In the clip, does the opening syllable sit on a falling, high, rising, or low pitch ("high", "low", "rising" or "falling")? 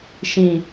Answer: low